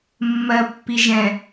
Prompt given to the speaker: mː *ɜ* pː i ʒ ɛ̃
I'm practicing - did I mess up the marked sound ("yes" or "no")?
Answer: no